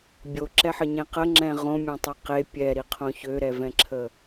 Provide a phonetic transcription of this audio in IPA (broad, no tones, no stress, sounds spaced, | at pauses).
bʲ o ǁ ɛ ħ ə ɲ ẽ q ə ŋ͡ǁ ɛ̃ ʁ õ mʲ õ tˤ ɛ q e pʲ ɛ ɾ i qʰ õ ç ø ɾ ɛ v ɛ̃ ǁʰ ə